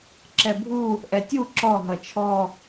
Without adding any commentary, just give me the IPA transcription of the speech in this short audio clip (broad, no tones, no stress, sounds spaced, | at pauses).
ǁ ɛ bʱ u | ʔ ɛ tʲ u ǁ ɔ ɦ ʌ t͡ʃʰ ɔ